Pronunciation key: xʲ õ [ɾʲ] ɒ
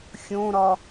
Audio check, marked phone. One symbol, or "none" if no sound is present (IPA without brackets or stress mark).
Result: ɾ